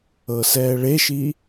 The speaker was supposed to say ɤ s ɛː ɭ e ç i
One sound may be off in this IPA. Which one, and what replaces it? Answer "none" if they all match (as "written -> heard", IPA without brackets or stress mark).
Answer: ç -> ʃ